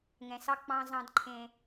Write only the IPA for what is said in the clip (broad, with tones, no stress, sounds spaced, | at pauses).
ŋ ɛ̃˨ s ɑ˦ k͡p ɑ̃˦ z ɑ̃˦ d ǃʰ ẽ˦